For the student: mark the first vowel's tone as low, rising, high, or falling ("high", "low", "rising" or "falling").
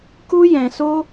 high